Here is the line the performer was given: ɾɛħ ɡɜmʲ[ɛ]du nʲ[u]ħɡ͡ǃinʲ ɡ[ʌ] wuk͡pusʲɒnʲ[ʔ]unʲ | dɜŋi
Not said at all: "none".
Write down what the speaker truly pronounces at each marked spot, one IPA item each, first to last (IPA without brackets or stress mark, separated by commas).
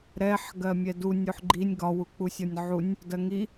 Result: ɛ, u, ɒ, ʕ